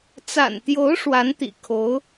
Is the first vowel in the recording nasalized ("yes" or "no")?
no